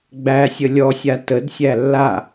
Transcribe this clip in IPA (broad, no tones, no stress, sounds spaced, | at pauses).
ɡ͡b æ sʲ ə lʲ ɔ sʲ a t ə d sʲ æ lː a